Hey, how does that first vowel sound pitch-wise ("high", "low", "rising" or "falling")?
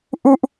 high